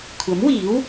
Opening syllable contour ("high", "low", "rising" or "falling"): rising